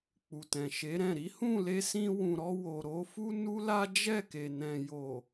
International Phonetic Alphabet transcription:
k͡p u˨ t ɛ̃˨ ʃ e˨˦ ɾ ɛ̃˦˨ ɾ i˨˦ h ũ˦˨ l e˧ s ĩ˧ w ũ˨ ɾ ɔ˧ w o˨ ɾ o˨˦ f u˦ n u˦ l a˦ d͡ʒ ɛ˦˨ k e˨ n ɛ̃˨ j o˨

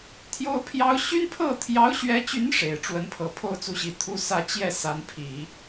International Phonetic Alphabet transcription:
t̪ʰ j o˥ ʊ̯ pʰ j ɑ˥ ʊ̯ ɕ y˥ n pʰ ɤ˥˩ t̪ʰ j ɑ˧˥ ʊ̯ ɕ ɥ ɛ˧˥ t͡ɕ y˧˥ n ʂ e˨˩ ɪ̯ ʈ͡ʂ w ə˧˥ n pʰ ɤ˨˩ pʰ o˥ ʊ̯ t͡s u˧˥ ɕ i˨˩ t̪ʰ u˥ s ä˥˧ t͡ɕ j ɛ˥˩ s a˧˥ n pʰ i˨˩˦

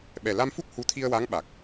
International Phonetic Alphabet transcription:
ɓ ɛ˨˩ l a˧ m f u˦˥ k̚ h u˧˥ t̪ʰ i˧ ə̯ w a˧˥ ŋ ɓ a˨˩ k̚

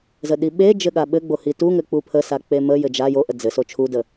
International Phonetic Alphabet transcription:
z ə ɗ i ɓ e d͡ʒ ɘ ɠ a ɓ ɘ ɡ͡b o h i t u ŋ ɘ k͡p u pʰ ə s a k͡p e m ə j ɘ d͡ʒ a j o ʔ ə d͡z ɘ s o t͡ʃʰ u d ə

